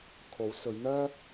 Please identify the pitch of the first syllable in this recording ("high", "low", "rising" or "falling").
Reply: rising